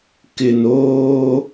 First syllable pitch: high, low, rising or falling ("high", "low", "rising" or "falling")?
low